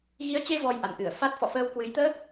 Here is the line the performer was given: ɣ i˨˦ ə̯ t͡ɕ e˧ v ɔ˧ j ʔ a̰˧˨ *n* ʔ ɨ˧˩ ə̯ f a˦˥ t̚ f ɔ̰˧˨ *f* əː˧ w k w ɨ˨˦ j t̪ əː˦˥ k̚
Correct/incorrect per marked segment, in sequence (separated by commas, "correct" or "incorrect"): correct, correct